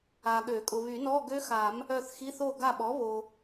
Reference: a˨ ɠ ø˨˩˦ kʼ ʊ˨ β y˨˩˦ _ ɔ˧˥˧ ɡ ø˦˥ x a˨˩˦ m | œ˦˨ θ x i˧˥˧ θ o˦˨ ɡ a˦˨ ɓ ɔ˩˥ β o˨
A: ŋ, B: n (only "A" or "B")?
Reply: B